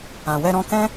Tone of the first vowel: low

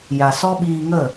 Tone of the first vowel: low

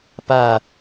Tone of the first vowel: falling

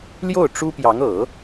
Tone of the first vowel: falling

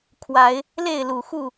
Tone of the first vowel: rising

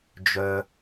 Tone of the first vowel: low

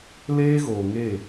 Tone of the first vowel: high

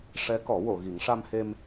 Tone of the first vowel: rising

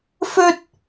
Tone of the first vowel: high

